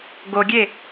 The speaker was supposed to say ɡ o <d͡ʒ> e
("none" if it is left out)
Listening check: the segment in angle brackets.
ɡʲ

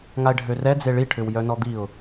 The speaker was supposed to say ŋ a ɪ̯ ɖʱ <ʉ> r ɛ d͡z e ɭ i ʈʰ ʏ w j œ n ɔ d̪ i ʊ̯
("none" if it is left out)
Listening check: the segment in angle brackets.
ø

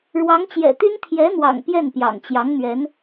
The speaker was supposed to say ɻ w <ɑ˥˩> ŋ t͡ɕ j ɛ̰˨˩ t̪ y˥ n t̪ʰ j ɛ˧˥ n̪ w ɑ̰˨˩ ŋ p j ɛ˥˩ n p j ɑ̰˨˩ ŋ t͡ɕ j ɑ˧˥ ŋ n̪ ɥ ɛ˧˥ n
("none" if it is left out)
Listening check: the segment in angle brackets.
ɑ˧˥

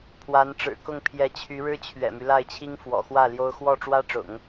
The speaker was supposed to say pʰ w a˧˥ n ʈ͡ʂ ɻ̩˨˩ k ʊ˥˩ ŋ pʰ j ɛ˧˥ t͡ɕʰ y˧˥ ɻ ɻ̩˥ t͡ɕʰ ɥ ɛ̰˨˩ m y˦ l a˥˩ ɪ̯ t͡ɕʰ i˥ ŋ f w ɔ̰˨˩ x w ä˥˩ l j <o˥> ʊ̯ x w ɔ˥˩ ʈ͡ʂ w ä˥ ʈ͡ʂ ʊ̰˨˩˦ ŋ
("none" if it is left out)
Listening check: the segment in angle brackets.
o˥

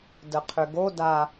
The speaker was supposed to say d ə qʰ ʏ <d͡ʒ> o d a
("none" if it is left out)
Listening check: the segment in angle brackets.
ɡ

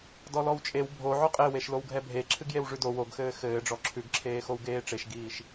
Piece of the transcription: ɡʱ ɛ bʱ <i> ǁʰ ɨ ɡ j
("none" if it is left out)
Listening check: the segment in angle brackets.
e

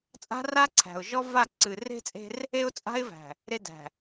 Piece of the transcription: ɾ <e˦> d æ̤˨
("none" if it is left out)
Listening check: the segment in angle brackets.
e˦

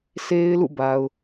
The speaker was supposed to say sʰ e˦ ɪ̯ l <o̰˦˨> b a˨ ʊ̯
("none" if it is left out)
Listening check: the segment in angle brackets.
ṵ˦˨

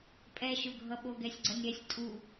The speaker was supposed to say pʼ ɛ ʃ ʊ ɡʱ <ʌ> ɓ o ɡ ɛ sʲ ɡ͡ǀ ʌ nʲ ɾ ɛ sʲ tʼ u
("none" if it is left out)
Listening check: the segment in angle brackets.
ʌ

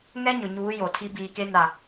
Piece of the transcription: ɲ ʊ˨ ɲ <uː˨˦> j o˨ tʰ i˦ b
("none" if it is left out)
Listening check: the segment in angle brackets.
uː˨˦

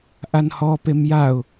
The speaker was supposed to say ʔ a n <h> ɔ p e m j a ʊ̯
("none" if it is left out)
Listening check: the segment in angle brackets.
h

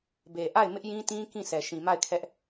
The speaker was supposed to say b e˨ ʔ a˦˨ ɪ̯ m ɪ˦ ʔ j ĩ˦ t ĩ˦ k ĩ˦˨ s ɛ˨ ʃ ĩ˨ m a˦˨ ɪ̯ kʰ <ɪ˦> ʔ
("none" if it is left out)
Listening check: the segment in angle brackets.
ɛ˦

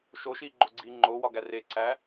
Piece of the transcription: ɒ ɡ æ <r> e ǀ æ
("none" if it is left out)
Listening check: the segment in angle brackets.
r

